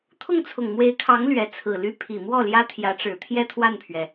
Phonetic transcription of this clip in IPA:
t̪ʰ ʊ˥˩ ŋ t͡sʰ ʊ˨˩ ŋ m w e˧˥ ɪ̯ kʰ ɑ˧˥ ŋ l ɥ ɛ˧˥ t͡sʰ ɹ̩˨˩ l y˥ pʰ i˨˩ m w ɔ˥˩ l j ä˥ t̪ʰ j ä˧˥ ʈ͡ʂ ɻ̩˨˩ t̪ʰ j ɛ˥˧ t̪ʰ w a˥˩ n pʰ ɥ ɛ˩

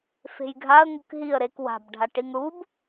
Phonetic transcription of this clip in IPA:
f e̤ j ɡʱ a ə̯ ŋ ɯ k ɦ i ə̯ ɾ e k w a̤ b ɖʱ a ʈ i ŋ ɽ u b

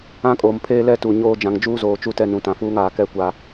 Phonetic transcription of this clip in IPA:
ã˦ kʼ oː˨ m pʰ eː˦ l ɛ˦ t u˨ ɲ oː˦ d͡ʒ ã˨ ŋ d͡ʒ uː˦ z oː˨ t͡ʃ u˦ t ɛ˦ n ũ˨ t ã˨ f uː˦ ŋ aː˨ k ɛ˦˨ kʷ a˨

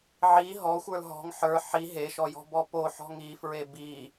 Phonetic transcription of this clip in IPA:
ʕ i ɦ ɔ xʷ ə˞ l ɦ ɔ̤ ŋ ħ ə˞ ħ i ɦ e ʃ ɔ j ɔ̤ b ɔ p o ħ ɔ̤ ŋ i f ɹ e b i

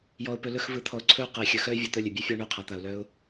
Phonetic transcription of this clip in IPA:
j ɔ˨ ʊ̯ p ɵ˨ l ɵ˦˨ x v ɯ˨ t̪ʰ ɔ˨ ʊ̯ ǀʰ ɵ˦˨ ʊ̯ q ə˨ ɪ̯ xʲ ɵ˨ x œ˦ ɪ̯ vʲ ɔ˨ t̪ œ˦˨ lʲ ɵ˨ bʲ œ˦ fʲ ɔ˦ ɳ œ˦˨ qʰ a˨ t̪ a˨ ʊ̯ l œ˦ ʊ̯

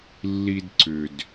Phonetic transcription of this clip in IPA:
lː i˧ d ǀ ʏ˨ d

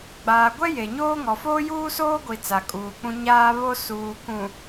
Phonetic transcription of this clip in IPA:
ɡ͡b aː˨ ɡʷ ɛ˦ j e˨ ɲ oː˦ ŋ ɔ˨ f oː˦ j uː˦ s oː˦ ɡʷ i˨ t͡s a˨ kʼ uː˨ k͡p ũ˦ ɲ aː˦ β o˦ s uː˨ k ũ˨

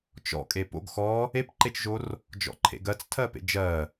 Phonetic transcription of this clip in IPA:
t͡ʃ ɔ̰ kʼ e p o̰ ɡ x ɔ | e p ǃ e t͡ʃ ʒ o r | d͡ʒ ɔ̰ ǃʰ ḛ ɡ ɜ t͡s tʰ ɜ p ḛ d͡ʒ ɜ

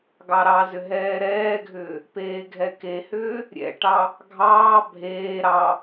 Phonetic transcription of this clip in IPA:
ɡ ɑ ɾ ɑ z ʏ ɦ ɛː ɾ ɛː ɡʱ ʏː | p eː ɡʱ ɛ k e h ʏː | ɾʲ ɛ̰ ʈ ɑ | ɡʱ ɑː bʱ eː ɾ ɑ

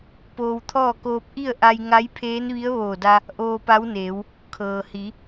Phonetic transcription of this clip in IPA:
p oː˧ w t̪ʰ ɔː˥˨ k oː˧ p̚ ʔ i˥˨ ə̯ ʔ a˧ j ŋ a˧˥ j pʰ eː˧˥ n ʋ i˧˥ ə̯ ʋ oː˧˩ d a˧ | ʔ oː˧ p a˧˥ w n eː˩˧ w | kʰ ɤː˩ h i˩˧

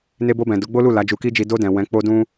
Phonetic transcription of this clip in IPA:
n e˧ b o˧ b ɛ̃˨ d o˨˦ ɡ͡b o˦ l u˦˨ l a˨˦ d͡ʒ u˧ k i˦ d͡ʒ i˧ d o˧ d ɛ̃˨ w ɛ̃˨˦ k͡p o˦ d ũ˦

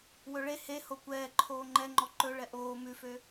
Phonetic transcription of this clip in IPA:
w ɵ ɭ e h e h o kʷ ɛː ǃʰ oː ŋ͡ǃ ɛ ŋ͡ǃ ɔ ǃ ɵ ɭ ɛ ʔ oː m ʉ f ø

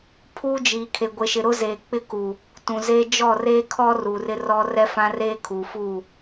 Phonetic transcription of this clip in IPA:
pʰ uː˦ d͡ʒ iː˨ kʰ e˨ ɡʷ e˨ ʃ ɪ˨ ɾ ʊ˦ z eː˨ k͡p ɪ˦ k u˨ | t ũ˨ z e˦ d͡ʒ ɔ˦˨ r eː˦ kʰ ɔ˦ r uː˨ r ɪ˦ r ɔ˦ r ɛ˦ f ã˦ r eː˦ kʰ u˨ f u˦˨

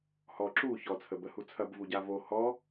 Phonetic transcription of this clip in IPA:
h ɔ ǁ u ç ɔ t͡sʰ ə b ə h u t͡sʰ ɐ b v u ɟ a v o h ɔ

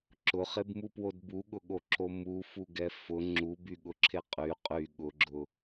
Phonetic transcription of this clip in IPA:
ǁ ʊ χ e b m u p w o d b u ɠ ʊ ɠ o ǁ o m u f u ɡ ɛ f ʊ ŋ͡ǁ u b y ɠ ʊ ǁʰ e qʼ y qʼ y ɠ ʊ ɡ͡ǁ ʊ

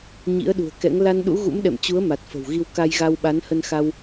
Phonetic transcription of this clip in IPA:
ɲ ḭ˧˥ ə̯ ɗ ṳ˨˩ ə̯ k ɛ̰˧˥ ŋ l a˧ n ɗ ṵ˧˥ ɣ ṵ˧˥ m ɗ ɛ̰˧˨ m t͡ɕ u˨˦ ə̯ m a˨˩ t̚ f ə̤˨˩ w ɣ i˧ w k a˧ j ɣ a˧ w ɓ a˨˦ n h ə˧ n x a˧ w

